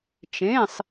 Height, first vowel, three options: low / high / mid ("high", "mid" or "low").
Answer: mid